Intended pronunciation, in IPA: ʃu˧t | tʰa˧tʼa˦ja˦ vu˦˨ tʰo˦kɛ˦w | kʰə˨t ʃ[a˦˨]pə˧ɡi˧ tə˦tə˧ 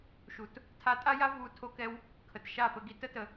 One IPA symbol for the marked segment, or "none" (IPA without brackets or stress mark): a˦˨